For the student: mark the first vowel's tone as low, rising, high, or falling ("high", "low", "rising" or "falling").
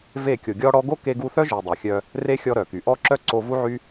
falling